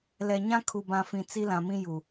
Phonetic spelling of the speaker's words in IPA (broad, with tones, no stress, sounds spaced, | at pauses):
l ɛ˨ ɲ ã˦ kʰ u˨ b ã˨ f ĩ˨ t͡s i˦ l ã˨ m ĩ˦ j u˨